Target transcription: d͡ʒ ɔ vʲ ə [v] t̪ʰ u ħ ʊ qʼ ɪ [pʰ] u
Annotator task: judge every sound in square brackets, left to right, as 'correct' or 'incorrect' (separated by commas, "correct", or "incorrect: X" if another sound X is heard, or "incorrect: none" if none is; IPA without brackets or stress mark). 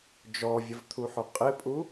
correct, incorrect: pʼ